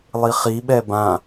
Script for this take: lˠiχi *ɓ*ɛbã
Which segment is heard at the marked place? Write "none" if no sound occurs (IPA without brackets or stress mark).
ɓ